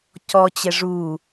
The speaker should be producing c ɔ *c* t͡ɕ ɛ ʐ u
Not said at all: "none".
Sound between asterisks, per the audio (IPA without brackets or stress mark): none